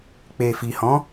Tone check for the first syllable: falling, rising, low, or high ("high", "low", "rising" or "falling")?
low